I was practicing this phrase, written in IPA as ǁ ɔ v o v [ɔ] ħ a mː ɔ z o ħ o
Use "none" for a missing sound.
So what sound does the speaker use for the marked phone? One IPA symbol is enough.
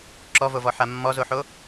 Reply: ɔ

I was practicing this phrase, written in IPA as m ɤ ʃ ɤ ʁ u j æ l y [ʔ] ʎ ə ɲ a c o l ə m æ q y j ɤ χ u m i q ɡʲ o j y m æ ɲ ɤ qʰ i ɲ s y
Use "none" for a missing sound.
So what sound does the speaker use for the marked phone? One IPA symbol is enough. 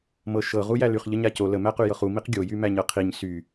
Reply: χ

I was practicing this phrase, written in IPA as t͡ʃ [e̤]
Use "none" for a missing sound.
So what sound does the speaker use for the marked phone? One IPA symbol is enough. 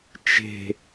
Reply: e̤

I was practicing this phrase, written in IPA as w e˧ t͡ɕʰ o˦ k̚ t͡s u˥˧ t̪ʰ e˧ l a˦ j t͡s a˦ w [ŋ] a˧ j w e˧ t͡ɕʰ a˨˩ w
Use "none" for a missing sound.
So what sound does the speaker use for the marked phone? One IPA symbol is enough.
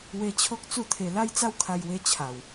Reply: kʰ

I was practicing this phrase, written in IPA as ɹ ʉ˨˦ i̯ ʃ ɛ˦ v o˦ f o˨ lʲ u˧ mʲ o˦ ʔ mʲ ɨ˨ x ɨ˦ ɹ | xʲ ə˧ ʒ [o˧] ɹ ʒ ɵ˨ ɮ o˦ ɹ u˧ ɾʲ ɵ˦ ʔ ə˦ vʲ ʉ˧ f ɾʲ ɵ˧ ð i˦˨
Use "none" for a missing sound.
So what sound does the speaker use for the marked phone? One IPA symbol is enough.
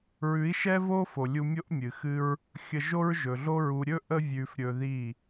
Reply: o˦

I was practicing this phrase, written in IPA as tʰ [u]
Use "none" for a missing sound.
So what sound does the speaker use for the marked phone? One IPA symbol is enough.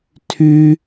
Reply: y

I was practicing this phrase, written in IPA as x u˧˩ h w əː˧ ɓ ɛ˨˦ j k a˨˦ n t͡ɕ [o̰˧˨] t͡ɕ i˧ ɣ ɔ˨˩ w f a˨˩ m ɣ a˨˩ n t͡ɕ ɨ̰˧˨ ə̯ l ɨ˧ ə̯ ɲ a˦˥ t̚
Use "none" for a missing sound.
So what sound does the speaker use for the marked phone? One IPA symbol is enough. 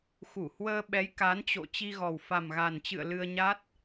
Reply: o̰˧˨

